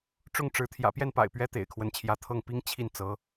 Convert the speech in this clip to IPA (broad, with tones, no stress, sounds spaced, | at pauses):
ʈ͡ʂ ʊ˥˩ ŋ ʈ͡ʂ ɻ̩˧˥ t̪ʰ j ä̰˨˩ p j ɛ˥˩ n p a̰˨˩ ɪ̯ p ɥ ɛ˥ t̪ ḛ˨˩ ɪ̯ kʰ w ə˧˥ n t͡ɕʰ j ä˧˥ t̪ʰ ɤ˥˩ ŋ p i˥ ŋ t͡ɕʰ i˥˩ n t͡s ɤ˧˥